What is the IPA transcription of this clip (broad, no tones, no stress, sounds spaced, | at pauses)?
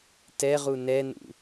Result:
t ɛ ʁ u n ɛ n ṵ